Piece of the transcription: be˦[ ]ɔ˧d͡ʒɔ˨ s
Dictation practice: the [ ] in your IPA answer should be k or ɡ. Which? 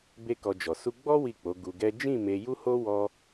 k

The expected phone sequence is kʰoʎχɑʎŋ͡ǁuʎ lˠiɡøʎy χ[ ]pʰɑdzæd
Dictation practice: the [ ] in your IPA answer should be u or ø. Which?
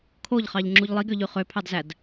ø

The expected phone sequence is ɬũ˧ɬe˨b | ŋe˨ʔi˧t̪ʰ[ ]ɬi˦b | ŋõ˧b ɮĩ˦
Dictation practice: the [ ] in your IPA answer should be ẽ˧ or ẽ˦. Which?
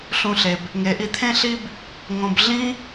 ẽ˦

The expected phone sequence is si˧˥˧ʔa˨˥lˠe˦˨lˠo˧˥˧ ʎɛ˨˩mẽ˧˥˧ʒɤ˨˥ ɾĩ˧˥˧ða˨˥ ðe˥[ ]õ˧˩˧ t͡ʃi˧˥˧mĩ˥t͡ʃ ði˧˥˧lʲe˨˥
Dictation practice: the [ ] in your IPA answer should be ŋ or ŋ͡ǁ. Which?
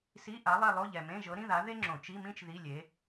ŋ͡ǁ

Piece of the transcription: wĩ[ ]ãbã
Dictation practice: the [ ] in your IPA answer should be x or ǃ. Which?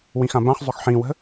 x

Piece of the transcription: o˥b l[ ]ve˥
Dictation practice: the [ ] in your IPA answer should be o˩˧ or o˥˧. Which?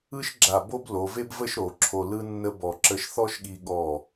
o˩˧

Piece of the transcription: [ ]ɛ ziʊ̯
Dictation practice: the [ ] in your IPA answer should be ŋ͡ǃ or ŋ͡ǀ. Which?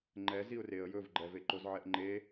ŋ͡ǃ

